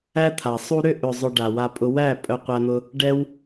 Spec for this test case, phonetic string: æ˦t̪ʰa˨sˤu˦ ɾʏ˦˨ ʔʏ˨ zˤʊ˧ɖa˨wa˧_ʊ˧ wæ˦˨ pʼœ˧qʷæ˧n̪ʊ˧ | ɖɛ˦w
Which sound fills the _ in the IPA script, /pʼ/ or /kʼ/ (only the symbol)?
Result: pʼ